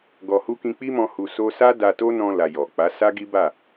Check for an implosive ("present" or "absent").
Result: absent